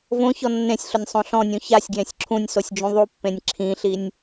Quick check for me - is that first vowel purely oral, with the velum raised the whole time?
no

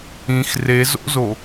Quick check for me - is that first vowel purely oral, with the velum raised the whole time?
no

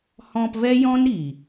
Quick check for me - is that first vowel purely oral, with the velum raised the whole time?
no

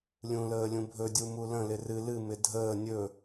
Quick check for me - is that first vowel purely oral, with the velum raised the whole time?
no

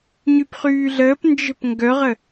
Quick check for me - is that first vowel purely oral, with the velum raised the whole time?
yes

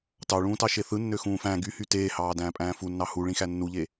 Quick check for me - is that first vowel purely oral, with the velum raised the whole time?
yes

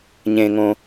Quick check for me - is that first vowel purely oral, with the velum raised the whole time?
no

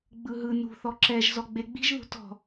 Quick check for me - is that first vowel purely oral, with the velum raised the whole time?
yes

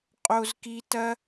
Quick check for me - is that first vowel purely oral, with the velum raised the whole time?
yes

